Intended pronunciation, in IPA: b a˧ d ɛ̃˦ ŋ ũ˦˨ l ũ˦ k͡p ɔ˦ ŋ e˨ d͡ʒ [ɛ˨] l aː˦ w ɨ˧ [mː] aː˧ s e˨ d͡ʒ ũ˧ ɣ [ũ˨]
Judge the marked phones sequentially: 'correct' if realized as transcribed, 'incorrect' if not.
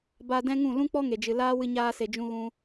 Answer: incorrect: ɨ˨, incorrect: ɲ, incorrect: ũ˧

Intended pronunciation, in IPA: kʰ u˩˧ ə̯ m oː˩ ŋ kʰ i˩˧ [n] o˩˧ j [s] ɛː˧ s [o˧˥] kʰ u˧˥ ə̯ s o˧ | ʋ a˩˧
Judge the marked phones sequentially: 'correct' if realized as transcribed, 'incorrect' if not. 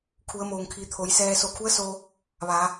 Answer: incorrect: t̪ʰ, correct, incorrect: o˧˩

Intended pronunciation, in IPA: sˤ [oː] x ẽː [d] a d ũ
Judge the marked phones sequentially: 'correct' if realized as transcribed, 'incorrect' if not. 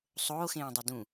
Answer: correct, incorrect: dˤ

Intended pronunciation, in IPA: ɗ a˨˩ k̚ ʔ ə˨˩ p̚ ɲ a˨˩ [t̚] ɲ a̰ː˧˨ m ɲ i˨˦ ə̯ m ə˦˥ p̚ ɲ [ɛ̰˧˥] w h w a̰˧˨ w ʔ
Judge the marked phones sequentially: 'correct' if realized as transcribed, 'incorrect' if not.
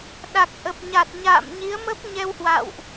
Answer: correct, incorrect: ɛ˧

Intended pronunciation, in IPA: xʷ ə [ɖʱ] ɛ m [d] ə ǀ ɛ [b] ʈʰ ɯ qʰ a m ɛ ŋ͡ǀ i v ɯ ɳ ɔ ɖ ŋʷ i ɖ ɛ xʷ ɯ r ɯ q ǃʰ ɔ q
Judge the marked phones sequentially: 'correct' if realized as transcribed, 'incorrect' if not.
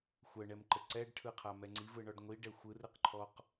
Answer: incorrect: ɳ, incorrect: ǃ, incorrect: ɖ

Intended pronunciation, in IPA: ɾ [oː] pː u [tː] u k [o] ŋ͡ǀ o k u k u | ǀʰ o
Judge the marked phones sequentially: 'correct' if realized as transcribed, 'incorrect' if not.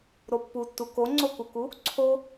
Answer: incorrect: o, correct, correct

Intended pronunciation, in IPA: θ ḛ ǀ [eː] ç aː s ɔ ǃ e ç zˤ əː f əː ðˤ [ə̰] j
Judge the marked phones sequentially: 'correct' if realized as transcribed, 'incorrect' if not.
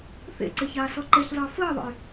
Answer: incorrect: e, correct

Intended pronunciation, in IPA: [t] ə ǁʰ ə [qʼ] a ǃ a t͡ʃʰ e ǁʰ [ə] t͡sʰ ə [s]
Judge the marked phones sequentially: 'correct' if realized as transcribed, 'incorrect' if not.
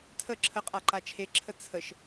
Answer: incorrect: tʰ, correct, correct, incorrect: ʃ

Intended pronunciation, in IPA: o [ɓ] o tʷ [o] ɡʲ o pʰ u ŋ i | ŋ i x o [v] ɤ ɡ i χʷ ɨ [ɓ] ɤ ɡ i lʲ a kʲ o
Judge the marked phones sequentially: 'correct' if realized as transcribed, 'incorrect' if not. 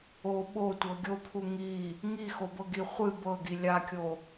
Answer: correct, incorrect: ɤ, incorrect: b, incorrect: b

